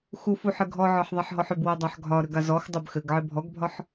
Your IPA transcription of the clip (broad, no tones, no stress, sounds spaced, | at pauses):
x u f u ħ ɘ ɡʱ ɔ ʕ ɒ ħ ðˤ a ħ ɦ ɔ ħ ʏ b w ɘ dˤ a ħ ɡʱ ɒ ɾ ʏ ɡ a z ɔ x dˤ ʏ b x ɘ ɡ ʕ ɘ bʱ ɔ ɡ bʱ ɒ ħ